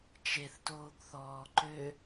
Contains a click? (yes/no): yes